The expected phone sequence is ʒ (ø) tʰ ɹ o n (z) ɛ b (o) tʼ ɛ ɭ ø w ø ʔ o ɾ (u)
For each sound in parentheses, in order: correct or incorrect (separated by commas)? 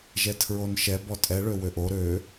incorrect, incorrect, incorrect, incorrect